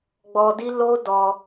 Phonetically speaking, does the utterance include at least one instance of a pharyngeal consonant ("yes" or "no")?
no